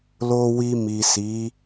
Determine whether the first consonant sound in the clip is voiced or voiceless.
voiced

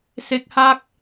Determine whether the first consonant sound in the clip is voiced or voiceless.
voiceless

